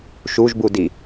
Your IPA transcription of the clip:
ʃ u ʒ b u d i

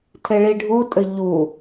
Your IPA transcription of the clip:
tʰ e ɭ i ɖʱ u tʼ ɘ ʎ u

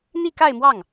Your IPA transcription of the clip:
n̪ i˥˧ k a˥˧ ɪ̯ m w ɑ˥˩ ŋ

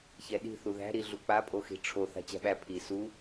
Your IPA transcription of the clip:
ç ɛ ɗ i̤ θ u ð æ̤ ɾ i ɮ u k͡p a pʼ o x i̤ ʈ͡ʂʰ o θ a̤ t͡ɕ æ̤ ɓ æ pʰ i s u

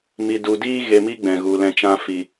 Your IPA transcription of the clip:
m i˨ d u˨ d iː˦ ɣ e˧ m i˦ ɡ͡b ɛ̃˨ ɣ u˨ l ɛ̃˧ t͡ʃ ã˧ f i˨

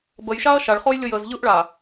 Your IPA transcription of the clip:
b ə j ʃ a ɐ̯ ʃ a ɭ χ o j lʲ ɤ j ə z ʎ ɯ ʔ ɭ a

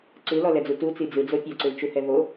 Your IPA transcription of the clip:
ǀ ɯ l ɔ l ɛ d͡z u t u t͡s i d͡z ɯ d͡z o pʲ ɔ ǀ ɯ l t͡ʃ u h ɛ v o

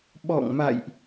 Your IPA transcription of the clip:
ɓ ɔ̰˧˨ ŋ m a̰˧˨ j ʔ

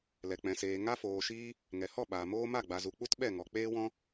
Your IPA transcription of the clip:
l ɛ˨ k͡p ɛ̃˨ s eː˨ ŋ a˦ f oː˨ ʃ iː˦ | ŋ ɛ˨ h ɔ˦˨ ɓ aː˨ m oː˦ m a˦˨ ɡ͡b a˨ z u˨ k͡p u˦ t ɓ ɛ˦˨ ŋ ɔ˨ k͡p eː˦ w ɔ̃˦

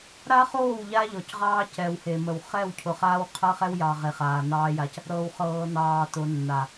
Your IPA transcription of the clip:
ɾ a˦ χ oː˦˨ w ʎ a˦ ʎ ɔ˨ c ʁ ɑː˦ c ɛ˨ w h e˨ m ə˨ w χ ɛ˦˨ w cʰ ʊ˨ χ aː˦ w qʰ ɤ˦ χ ɛ˦ w j ɑ˨ ʁ e˨ χ aː˨ n ɑː˦ j a˦ c | ɾ ɤː˨ w χ ɤː˨ n ɑː˨ t ʊ˨ nː a˨

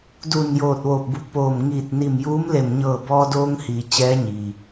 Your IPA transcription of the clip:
d u˧˩ n j oː˧˩ t̚ ʋ oː˧˩ p̚ b u˧˩ k̚ p oː˧˩ m ŋ iː˧˩ t̚ n i˧˩ m j uː˧˥ m l e˧˩ m ɲ ɤː˧˩ b ɔː˧ d oː˧ ŋ h iː˩ t͡ɕ ɛː˧˥ ɲ i˩

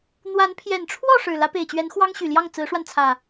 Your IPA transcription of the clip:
n̪ w a˨˦ n pʰ j ɛ˨˩ n ʈ͡ʂʰ w ɔ˥˨ ʂ ɻ̩˨˩ l ä˨˦ p e˨˩ ɪ̯ t͡ɕ ɥ ɛ˨˦ n x w ɑ˦ ŋ ɕ y˨˩ l j ɑ˥˨ ŋ t͡s ɹ̩˨˦ ʂ w a˧ n t͡sʰ ä˨˩

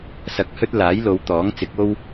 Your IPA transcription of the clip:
s ɐ˧ k̚ h ɵ˥ t̚ l aː˨˥ j l o˨˧ w t̪ ɔː˨˥ ŋ t͡s ɪ˨˥ k̚ o˧ w

